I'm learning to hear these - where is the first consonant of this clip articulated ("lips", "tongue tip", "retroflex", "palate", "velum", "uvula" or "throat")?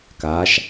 velum